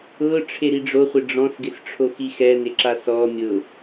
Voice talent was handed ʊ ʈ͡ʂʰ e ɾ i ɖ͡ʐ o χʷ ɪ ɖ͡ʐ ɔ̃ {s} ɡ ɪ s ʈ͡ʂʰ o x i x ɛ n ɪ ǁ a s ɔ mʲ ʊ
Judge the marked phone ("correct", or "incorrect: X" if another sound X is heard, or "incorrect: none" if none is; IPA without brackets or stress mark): correct